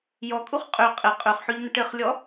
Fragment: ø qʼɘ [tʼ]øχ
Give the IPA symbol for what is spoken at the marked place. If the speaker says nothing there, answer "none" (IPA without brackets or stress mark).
qʼ